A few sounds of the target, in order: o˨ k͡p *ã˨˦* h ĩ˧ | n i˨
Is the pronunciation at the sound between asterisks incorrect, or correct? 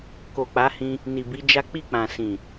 incorrect: a˨˦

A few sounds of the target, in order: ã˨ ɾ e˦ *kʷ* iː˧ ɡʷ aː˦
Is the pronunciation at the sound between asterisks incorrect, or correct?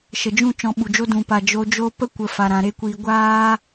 correct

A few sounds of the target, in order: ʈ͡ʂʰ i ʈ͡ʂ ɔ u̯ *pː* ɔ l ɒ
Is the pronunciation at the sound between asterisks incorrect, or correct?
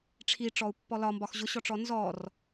correct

